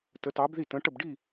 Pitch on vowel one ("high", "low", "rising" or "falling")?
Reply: rising